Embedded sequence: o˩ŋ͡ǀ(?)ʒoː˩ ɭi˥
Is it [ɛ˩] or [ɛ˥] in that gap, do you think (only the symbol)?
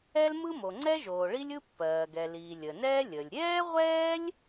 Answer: ɛ˥